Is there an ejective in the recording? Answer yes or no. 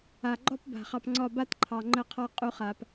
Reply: yes